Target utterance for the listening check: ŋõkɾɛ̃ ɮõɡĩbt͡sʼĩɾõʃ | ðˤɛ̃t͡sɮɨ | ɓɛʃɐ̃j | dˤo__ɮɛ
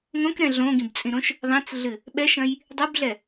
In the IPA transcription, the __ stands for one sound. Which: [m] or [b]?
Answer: b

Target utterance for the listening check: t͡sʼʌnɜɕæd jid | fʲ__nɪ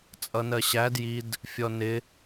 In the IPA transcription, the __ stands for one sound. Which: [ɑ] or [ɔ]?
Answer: ɔ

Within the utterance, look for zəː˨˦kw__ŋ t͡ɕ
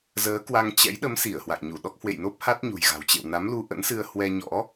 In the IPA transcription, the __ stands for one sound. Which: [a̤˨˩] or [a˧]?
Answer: a˧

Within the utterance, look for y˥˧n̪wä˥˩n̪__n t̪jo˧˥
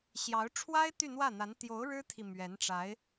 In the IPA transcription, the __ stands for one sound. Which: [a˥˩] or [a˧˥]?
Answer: a˧˥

